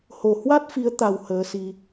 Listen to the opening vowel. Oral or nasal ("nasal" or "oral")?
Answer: oral